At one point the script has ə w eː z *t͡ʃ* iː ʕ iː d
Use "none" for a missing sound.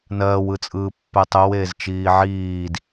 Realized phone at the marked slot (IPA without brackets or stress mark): t͡ʃ